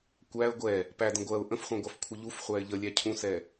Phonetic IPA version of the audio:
kʷ æ ə̯ ɡʷ ɛ | p æ d ə̃ ɡʷ ɜ ʊ̯ ʔ ə̃ f χʷ ɛ̃ ɡʷ ɑ f kʷʰ ə ʎ u f χʷ æ ɪ̯ ʎ ə lʲ æ cʰ ũ s ɛ

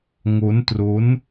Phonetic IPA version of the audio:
ŋ o˦˥ n t r o˦˥ n

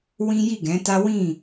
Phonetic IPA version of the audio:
w ĩ˦ j i˦˨ ɡ ɛ̃˨˦ t a˦ w ĩ˦˨

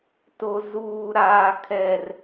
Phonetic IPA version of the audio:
t o˨ z uː˨ ɾ aː˨ kʰ ɛ˨ r

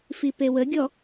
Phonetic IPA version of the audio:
f i p e w ə ɡʲ ɔ

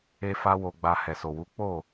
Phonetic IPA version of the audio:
e˧ f a˦ w o˧ ɡ͡b a˧ h ɛ˨ s o˨ w u˨˦ k͡p o˦˨

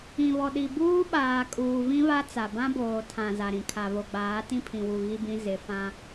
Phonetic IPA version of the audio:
ĩ˨ β ɔ˨ ɗ i˨ b uː˦ ɓ aː˨ kʼ uː˨ v ĩ˦ β a˦ t͡s a˨ b ã˦ b oː˨ tʰ ã˨ z a˨ ɾ ĩ˨ kʰ a˨ β o˨ ɡ͡b aː˨˦ t ĩ˦ pʰ ĩ˨ w u˨ ɣ i˦ b ĩ˦ z ɪ˨˦ f ã˦

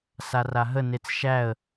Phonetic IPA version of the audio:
s a r a ɦ ə n e t͡s ʃ æ ə̯

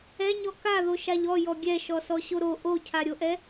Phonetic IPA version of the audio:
ɛ ɲ ɔ k a ð o ʃ a ʎ ɔ j ɔ ɡʲ ɛ ʃ ɔ s ɔ ɕ o ɾ o ʔ o cʰ a ɾʲ o ʔ ɛ

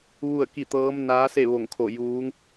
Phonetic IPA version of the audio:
ʋ u˥˨ ə̯ k i˥˨ t̪ ɤː˧˥ m n aː˧˥ s e˥˨ ʋ o˧˩ ŋ kʰ o˧˩ j uː˧˥ ŋ

